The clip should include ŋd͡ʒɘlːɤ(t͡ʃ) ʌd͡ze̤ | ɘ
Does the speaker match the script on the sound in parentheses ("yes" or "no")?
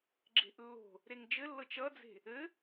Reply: yes